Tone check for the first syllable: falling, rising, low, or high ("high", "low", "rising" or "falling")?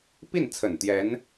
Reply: falling